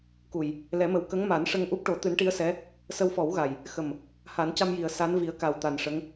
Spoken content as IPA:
k u˨˩ j | l ɛ˨˩˦ m ə˨˩ w k ə˧˥ ŋ m a˨˩˦ n ʂ ə˧ ŋ ʔ u˦˥ p̚ ʈ o˨˩˦ t̪ ɨ˨˩˦ n ʈ i˧˥ ə̯ s ɛ˧˥ | s ə˧ w f ɔ˨˩˦ w ɣ a˨˩ j | x ə˨˩ m | h a˨˩˦ n c a˧ m j i˨˩ ə̯ s a˧˥ n v i˨˩˦ ə̯ k a˨˩ w t̪ a˨˩ n ʂ ə˧˥ ŋ

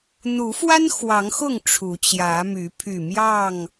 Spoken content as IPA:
n̪ u˨˦ f w a˦ n x w ɑ˨˦ ŋ x ʊ˥˨ ŋ ʈ͡ʂʰ u˨˦ t͡ɕ j ä˨˦ m y˨˦ pʰ y˨˩ m j ɑ˥˨ ŋ

